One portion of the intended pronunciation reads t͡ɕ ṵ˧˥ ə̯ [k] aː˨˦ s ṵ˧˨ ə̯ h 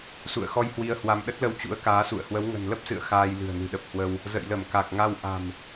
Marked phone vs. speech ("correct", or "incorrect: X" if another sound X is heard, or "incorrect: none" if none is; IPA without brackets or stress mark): correct